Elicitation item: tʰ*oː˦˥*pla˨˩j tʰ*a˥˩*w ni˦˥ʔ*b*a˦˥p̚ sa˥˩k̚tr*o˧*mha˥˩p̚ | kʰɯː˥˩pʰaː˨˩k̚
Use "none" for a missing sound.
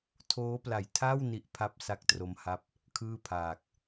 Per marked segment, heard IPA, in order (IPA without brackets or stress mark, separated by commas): oː˦˥, a˥˩, pʰ, o˦˥